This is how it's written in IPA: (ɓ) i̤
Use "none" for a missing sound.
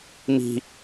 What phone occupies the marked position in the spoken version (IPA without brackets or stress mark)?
m